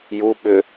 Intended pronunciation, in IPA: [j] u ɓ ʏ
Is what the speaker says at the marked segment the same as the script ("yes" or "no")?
yes